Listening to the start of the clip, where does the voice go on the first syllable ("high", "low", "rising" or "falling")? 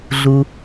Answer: low